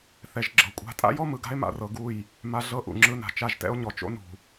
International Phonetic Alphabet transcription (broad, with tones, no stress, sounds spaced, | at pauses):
θ ɛ˨ ʒ ɡ͡ǁ ɤ˨ kʷʼ a̤˦ tʼ a̰˦ j ɔ˦ m ɯ˨ ɡ a̤˦ e̯ m a̰˨ r ɤ˨ ɡ u˦˨ j | m a˨ ɮ ɤ˦ ʔ ṵ˨ ŋ͡ǁ ɯ˦ n a̤˨ t͡ʃ a˦˨ ʒ t ɛ̰˦ o̯ ɲ ɔ˨ t͡ʃ o̰˦ n ṳ˨